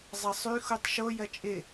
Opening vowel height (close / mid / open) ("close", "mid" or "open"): open